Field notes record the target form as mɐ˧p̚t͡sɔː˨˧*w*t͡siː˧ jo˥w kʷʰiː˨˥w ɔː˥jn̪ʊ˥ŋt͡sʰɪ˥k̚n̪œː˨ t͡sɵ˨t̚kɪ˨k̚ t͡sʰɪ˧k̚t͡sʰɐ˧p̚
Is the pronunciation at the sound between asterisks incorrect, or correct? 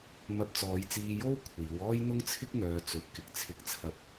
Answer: incorrect: j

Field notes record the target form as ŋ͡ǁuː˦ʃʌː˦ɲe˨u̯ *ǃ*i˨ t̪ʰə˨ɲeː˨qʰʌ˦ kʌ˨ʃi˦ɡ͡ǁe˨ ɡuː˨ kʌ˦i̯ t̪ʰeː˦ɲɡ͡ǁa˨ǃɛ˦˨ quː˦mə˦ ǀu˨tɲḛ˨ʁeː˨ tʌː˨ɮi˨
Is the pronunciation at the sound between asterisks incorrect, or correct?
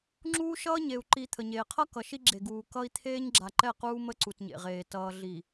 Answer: correct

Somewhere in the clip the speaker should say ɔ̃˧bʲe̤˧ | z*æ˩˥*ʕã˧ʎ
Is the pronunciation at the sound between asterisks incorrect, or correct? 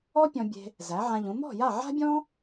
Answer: correct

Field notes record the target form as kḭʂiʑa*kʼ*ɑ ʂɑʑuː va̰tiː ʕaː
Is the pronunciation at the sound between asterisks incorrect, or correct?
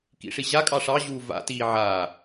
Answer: correct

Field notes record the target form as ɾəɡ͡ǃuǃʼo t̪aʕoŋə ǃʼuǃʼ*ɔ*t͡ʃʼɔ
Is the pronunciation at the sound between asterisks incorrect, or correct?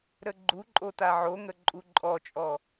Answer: correct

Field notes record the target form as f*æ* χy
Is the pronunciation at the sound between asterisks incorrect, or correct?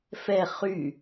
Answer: incorrect: ɛ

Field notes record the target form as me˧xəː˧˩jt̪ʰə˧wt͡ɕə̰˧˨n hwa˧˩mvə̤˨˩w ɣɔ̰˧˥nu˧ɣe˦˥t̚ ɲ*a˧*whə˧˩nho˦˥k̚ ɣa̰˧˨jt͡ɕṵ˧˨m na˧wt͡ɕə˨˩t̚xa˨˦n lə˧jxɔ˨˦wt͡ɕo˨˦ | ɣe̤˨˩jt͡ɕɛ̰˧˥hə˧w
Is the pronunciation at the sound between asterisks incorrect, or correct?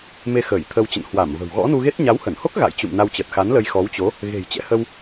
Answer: incorrect: a˨˦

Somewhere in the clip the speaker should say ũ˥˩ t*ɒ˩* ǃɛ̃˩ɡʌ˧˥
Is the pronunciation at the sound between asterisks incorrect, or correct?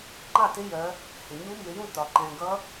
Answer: correct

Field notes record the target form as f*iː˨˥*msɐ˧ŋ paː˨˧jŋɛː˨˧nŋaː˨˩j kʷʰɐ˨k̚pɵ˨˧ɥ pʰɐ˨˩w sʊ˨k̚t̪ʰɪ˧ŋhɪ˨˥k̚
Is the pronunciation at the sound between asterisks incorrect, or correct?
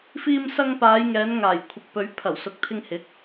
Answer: incorrect: iː˧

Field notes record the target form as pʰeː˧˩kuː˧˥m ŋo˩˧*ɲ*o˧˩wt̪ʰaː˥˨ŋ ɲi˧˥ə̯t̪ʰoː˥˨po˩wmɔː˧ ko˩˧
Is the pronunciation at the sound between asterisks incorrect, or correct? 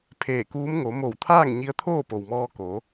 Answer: incorrect: m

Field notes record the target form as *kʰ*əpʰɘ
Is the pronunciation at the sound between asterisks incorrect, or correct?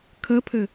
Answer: correct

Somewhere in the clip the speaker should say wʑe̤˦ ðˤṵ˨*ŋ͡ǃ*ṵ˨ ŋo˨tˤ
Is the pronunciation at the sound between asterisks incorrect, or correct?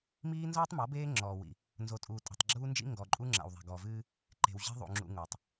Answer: incorrect: ŋ͡ǁ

